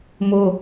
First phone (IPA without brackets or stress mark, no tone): m